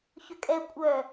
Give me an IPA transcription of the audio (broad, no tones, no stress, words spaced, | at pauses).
çʏkʼɛ kʷʼœ